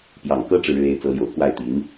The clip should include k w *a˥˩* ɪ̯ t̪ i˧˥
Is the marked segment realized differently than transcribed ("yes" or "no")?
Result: no